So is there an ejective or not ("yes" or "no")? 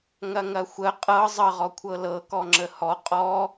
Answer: yes